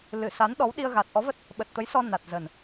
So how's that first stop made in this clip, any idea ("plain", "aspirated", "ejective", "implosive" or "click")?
implosive